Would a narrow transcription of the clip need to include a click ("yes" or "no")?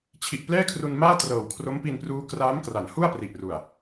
no